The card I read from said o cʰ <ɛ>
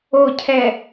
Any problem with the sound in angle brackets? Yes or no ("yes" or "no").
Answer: no